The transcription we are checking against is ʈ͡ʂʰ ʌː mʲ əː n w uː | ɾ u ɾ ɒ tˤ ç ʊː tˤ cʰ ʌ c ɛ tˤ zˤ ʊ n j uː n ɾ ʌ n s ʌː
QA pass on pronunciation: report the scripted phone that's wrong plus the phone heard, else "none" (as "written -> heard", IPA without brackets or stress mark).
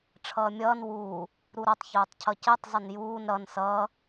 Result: əː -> ʌː